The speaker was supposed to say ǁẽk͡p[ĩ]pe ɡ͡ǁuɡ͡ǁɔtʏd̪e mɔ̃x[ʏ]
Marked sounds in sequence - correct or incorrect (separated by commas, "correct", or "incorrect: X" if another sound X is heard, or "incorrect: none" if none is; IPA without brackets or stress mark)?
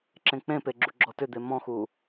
incorrect: ẽ, incorrect: u